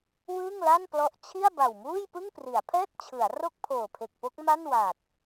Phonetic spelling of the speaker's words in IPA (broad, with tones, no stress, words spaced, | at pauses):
wɯː˥˩ŋla˥˩n plɔ˦˥ʔ t͡ɕʰi˥˩a̯ba˨˩wmuː˥˩jpɯ˥˩ŋ pri˩˦a̯pʰɛː˥˩t̚t͡ɕʰɯ˩˦a̯ ro˥˩k̚pʰoː˨˩pʰe˨˩k̚po˦˥k̚ ma˥˩nwa˨˩t̚